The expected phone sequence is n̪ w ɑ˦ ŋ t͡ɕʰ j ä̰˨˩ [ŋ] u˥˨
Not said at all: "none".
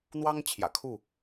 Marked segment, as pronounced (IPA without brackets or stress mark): kʰ